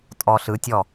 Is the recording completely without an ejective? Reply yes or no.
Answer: no